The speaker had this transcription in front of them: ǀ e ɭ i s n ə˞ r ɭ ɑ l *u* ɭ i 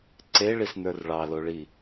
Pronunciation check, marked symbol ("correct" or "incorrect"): incorrect